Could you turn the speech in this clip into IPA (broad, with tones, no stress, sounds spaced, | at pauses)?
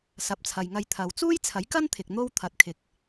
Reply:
s ɐ˨ p̚ t͡sʰ ɐ˨ j ŋ ɐ˧ j t̪ʰ ɐ˨ w t͡s uː˥ j t͡sʰ ɐ˨˥ j k ɐ˥ n t̪ʰ ɪ˨ k̚ n̪ o˥ w t̪ʰ ɐ˧ t̚ kʰ ɪ˧ k̚